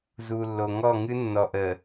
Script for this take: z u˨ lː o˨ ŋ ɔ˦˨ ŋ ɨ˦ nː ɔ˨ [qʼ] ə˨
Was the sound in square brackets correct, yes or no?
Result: no